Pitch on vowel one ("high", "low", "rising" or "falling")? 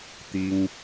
high